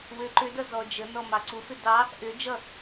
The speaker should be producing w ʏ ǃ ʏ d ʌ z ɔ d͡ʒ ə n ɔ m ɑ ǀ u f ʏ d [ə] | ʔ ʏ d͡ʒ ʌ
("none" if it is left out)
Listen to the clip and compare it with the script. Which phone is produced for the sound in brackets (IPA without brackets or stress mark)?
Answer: ɑ